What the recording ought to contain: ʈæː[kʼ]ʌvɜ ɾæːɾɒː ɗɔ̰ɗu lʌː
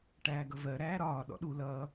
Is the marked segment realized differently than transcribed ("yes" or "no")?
yes